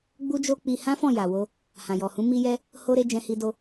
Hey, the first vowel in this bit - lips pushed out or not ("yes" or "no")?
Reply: yes